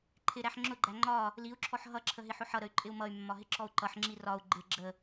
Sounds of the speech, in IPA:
ǃʰɪɾæħ ŋ͡ǁʊɡ͡ǃæ ŋ͡ǃɒ | liu̯ǁʰɔħ ɦʌǁʰə ɦɪħʊħʌɾəy̯ ǃʼɪu̯mʌy̯mːɒ ɦɪǁɔu̯ǃʌħŋ͡ǁi rɒu̯ ɡ͡ǃɪ ɡ͡ǁə

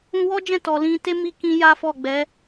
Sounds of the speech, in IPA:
ũ˧ wɔ˦d͡ʒɛ̃˦˨tɔ˨ lĩ˧ te˦mi˦˨kĩ˧ ja˦fɔ˦˨ɡ͡bɛ˨˦

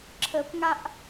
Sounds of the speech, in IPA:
ǁʰəpŋaʔ

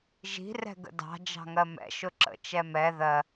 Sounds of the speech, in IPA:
ʒi̤ rɛ̤ɡə̰dɑ̤ d͡ʒɑ̤ŋɜmɛ̰ ʃʊǁə̰ t͡ʃɛmɛ ðɜ

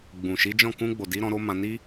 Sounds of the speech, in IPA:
ɡ͡bũ˨ʃi˨˦ d͡ʒɔ̃˦˨ kũ˧ɡ͡bo˨ di˨˦ɾɔ̃˧ ɾo˦mã˧ ni˦

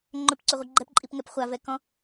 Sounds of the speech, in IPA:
ŋ͡ǃɵpǀɵʁʷɛ ɡ͡ǃɛpǃʼipŋɛp χʷavɛkɔ̃

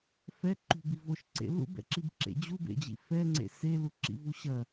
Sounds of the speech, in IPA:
fɛǃṳbi voʃǀḛ lṵbɛ̰ǁibǁḛ d͡ʑubḛd͡ʑḭ fɛŋ͡ǀḛ seluǁḭvu ɕɐ

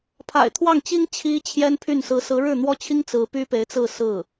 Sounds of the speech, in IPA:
pʰa̰˨˩ɪ̯t̪ʰwɑ˥˩ŋt͡ɕi˥ŋ t͡ɕʰi˥t͡ɕʰjɛ˥npʰy˥˩n sɹ̩˧˥sɹ̩˧˥ ɻɻ̩˥˩n̪wɔ˥t͡ɕʰi˥ŋ t͡sɹ̩˧˥py˥pe˧˥ɪ̯t͡sɹ̩˥˧ sɹ̩˥˩

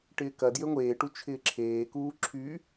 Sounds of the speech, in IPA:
ʈɪːkɐdjø ŋʷeːʈu t͡ʃʰɪːǁʰeːkuː ǁʰy

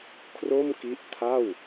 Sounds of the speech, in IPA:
kʰro˥˩mki˦˥ʔtʰa˥˩w

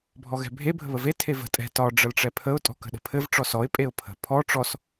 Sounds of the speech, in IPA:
bʱɔɣɛ̤bʱe bʱə̤βəve tʰevə̤ tʼɛ̤ tɒ ɖ͡ʐəlʈ͡ʂɛpʰəʊ̯ tʼɔ̤kə̤ɗə̤pʰɘv ʈ͡ʂɔsɔɪ̯ pʼeʊ̯pʰə̤ pʰɔ ʈ͡ʂɔs

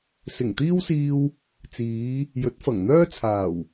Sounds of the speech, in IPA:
sɪ˨˩ŋt̪iː˥wsiː˧w | t͡siː˨˧ | jɵ˨˥t̚fɐ˨˩ŋn̪œː˥t͡sʰaː˨˩w

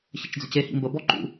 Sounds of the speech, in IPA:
çət͡ʃd͡zʏcehḭ mbəbɔ ǃṵ

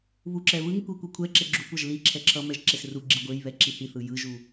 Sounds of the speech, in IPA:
βuǁɛβɯŋkʷi kʷikʷʰɛǁe ɡ͡ǁukʷʌʒ li ǁʰɛǁʰʌmɛʒ ǁesruɡ͡ǁi ɡʷejβɛ ǁihiθɯ jɯʒu

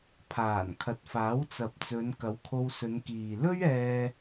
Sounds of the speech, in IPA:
pʰaː˨˩nkʰɐ˨t̚faː˨˥w t͡sɐ˨p̚t͡sɵ˨˧n kɐ˨˥wkʰo˧wsɵ˨˧nkiː˨ lɵ˥ɥɛː˧

